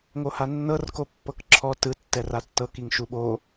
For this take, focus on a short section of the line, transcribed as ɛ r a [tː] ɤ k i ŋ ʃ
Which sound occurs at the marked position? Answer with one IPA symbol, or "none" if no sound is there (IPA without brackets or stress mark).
tː